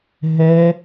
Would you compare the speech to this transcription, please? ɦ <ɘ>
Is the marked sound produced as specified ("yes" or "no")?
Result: no